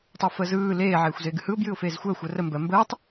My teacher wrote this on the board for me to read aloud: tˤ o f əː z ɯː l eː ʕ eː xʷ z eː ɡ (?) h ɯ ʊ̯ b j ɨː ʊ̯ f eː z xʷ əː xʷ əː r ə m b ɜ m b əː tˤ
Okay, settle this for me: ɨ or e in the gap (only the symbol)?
ɨ